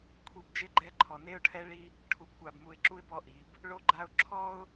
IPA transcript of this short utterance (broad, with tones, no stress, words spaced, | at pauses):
kʷʰi˨b d͡ʒɪ˦ɡ͡ǃɛ˦ǃʰɔ˨ ne˦ʊ̯ʈʰɛ˦ɭi˦ | ʈʰu˨bkʷa˨bmu˨ɪ̯ǁu˦ɪ̯ bɔ˦ʔi˨˦b | ɭo˦ɡ͡ǃa˦ʊ̯ ǁʰɔ˦ʊ̯